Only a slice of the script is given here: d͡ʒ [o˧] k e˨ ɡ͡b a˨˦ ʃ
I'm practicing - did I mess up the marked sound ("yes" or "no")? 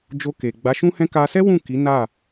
no